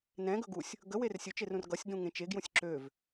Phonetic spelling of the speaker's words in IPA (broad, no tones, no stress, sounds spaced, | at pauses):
n ɛ̃ ɡ ɵ ɡ u sʲ | ɡ ə w e r sʲ ɵ t͡ʃ e r ũ r ɡ ʌ sʲ d ũ ŋ ẽ t͡ʃ e ɡ j ũ sʲ ǁ ø v